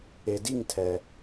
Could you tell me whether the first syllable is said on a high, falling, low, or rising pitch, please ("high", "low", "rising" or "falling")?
low